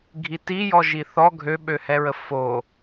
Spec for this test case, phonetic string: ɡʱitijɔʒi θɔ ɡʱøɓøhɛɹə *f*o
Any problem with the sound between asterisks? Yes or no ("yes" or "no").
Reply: no